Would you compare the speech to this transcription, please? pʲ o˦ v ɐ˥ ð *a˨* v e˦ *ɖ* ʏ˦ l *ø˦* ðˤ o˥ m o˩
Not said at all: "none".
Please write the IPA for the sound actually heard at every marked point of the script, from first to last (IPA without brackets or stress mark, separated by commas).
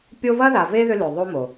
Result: a˨, ð, ø˨